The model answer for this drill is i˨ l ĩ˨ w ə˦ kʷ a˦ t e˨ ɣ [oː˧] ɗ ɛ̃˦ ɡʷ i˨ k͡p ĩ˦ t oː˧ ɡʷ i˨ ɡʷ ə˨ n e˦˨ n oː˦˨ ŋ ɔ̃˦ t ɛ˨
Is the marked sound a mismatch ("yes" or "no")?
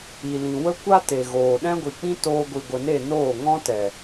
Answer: yes